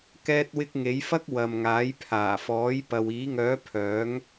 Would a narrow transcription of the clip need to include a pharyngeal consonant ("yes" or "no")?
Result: no